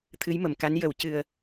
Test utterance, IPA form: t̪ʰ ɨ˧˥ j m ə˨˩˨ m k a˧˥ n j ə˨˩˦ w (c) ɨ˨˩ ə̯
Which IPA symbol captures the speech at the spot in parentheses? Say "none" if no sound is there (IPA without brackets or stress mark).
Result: c